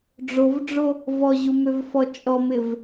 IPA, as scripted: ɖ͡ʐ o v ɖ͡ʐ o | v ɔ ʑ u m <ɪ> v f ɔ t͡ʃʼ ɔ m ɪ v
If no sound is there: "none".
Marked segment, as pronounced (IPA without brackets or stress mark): ʏ